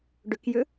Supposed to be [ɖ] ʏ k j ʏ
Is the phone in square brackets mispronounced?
no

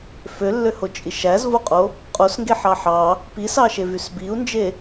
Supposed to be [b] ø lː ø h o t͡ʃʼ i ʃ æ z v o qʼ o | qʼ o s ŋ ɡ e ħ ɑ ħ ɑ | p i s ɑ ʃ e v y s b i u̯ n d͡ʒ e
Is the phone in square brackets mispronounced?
yes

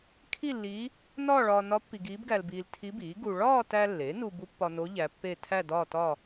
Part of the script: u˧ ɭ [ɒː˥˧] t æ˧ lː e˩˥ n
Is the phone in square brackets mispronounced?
no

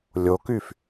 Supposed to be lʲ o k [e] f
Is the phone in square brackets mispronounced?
yes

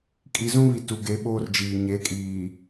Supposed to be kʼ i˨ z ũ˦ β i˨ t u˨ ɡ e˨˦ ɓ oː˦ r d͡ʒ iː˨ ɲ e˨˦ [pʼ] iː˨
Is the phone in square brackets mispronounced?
yes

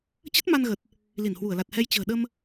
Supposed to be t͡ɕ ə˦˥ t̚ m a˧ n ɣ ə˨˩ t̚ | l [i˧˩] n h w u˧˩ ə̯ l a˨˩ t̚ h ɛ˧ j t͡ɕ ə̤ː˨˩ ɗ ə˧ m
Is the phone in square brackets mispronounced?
no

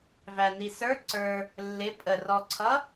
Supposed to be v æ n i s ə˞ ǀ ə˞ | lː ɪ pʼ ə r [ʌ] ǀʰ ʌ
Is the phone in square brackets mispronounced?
yes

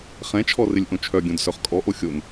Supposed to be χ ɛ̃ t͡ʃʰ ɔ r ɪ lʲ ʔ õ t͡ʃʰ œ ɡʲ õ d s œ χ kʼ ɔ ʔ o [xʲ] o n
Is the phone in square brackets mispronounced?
no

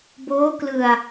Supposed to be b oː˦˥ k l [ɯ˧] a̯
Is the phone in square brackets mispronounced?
no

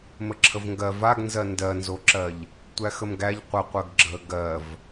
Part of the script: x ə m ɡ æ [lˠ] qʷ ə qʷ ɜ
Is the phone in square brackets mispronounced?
yes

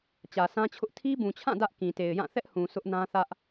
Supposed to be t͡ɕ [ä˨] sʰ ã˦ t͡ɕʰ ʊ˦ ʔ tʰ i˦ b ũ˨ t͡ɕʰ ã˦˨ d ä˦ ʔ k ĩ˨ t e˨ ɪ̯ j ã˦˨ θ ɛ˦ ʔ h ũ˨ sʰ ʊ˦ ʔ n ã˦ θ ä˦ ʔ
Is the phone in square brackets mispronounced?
no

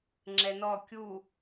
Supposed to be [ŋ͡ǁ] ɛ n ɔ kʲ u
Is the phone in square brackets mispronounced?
no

